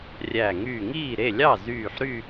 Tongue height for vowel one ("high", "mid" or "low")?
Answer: low